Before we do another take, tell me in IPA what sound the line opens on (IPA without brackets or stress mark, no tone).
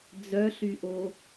d͡z